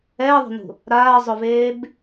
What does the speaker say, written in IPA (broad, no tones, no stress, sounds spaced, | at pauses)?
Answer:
ɛː ðˤ o̤ n ṳ | ɾ aː zˤ ʊ v eː b